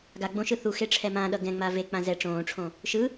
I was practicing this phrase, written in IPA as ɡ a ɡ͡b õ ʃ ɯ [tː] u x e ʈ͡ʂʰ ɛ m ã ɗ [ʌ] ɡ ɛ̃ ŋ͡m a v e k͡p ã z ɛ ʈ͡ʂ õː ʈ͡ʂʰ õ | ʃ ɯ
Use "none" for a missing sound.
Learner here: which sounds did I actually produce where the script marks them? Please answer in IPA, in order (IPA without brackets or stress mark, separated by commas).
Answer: θ, ʌ